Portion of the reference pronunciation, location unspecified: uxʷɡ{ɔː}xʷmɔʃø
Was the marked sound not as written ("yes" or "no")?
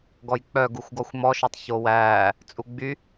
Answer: yes